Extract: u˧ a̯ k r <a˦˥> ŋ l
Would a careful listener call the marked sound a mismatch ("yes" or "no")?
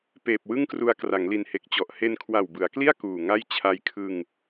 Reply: yes